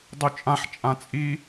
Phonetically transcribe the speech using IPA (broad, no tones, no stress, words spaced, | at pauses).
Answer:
dˤyt͡ʃʼãħ t͡ʃʼãt͡sʼi